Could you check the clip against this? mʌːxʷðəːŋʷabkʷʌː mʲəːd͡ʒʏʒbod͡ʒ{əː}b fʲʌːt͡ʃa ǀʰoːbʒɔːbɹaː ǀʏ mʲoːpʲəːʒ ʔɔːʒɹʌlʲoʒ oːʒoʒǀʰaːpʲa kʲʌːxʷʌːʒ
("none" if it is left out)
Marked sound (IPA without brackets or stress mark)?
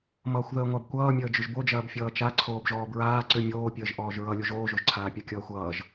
ɐː